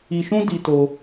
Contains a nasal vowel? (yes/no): yes